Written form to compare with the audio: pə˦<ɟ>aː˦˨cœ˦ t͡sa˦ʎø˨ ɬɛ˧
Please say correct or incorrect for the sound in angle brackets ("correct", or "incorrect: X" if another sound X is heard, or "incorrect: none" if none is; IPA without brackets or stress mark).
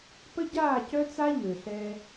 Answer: correct